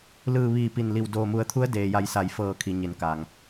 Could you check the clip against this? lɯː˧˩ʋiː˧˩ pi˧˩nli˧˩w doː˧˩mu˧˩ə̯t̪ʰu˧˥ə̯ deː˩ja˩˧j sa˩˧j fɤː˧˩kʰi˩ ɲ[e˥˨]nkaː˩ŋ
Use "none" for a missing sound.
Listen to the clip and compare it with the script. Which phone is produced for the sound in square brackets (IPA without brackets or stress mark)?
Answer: e˩˧